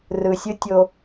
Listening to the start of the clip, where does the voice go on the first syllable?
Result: low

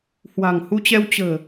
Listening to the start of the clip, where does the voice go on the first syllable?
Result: low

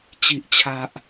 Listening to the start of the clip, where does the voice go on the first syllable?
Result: high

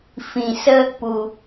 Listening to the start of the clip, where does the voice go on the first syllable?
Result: low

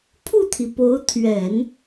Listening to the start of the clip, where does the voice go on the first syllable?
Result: falling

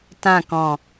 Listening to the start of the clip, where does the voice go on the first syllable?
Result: falling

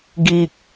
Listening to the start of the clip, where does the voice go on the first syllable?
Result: low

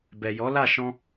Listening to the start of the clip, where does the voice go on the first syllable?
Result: low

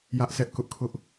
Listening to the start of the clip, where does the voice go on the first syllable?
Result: high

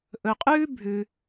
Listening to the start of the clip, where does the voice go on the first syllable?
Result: low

